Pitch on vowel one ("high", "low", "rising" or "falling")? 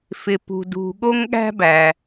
low